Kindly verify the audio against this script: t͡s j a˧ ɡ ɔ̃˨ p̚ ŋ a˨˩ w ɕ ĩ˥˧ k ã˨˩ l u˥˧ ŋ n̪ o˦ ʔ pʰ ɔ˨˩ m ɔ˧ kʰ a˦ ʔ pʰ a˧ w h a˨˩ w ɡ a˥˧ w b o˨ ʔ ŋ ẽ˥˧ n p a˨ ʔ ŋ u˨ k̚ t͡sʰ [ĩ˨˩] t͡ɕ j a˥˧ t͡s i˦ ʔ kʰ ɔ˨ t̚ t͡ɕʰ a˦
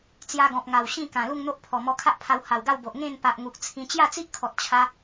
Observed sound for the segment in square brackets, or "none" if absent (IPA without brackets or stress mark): ĩ˧